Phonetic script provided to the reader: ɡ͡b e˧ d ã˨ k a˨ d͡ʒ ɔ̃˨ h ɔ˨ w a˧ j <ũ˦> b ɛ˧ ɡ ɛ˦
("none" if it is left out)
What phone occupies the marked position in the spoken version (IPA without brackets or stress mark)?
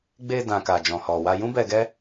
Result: ũ˦